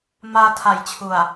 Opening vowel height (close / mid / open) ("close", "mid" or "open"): open